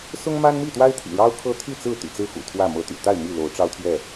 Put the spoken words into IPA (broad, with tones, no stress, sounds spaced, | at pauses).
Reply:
s ʊ˦ ŋ m a˦ n m i˥˨ t̪ w a˦ ɪ̯ t̪ʰ ḭ˨˩ ɻ ɑ˦ ʊ̯ kʰ ɤ˦ t̪ʰ y˥˨ t͡s ɹ̩˥˨ t̪ y̰˨˩ t͡s ɹ̩˥˨ x ṵ˨˩ t̪ʰ w ä˥˨ m ɤ˨˦ t̪ y̰˨˩ t̪ a˥˨ ɪ̯ m i˥˨ l o˨˦ ʊ̯ ʈ͡ʂ ɑ˦ ʊ̯ t̪ʰ ɥ ɛ˥˨